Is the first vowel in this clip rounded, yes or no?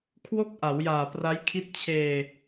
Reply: yes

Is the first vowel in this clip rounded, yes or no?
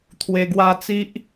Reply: no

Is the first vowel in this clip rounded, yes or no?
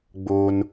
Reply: yes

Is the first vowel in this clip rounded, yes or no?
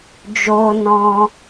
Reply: yes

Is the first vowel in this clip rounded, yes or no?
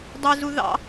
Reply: no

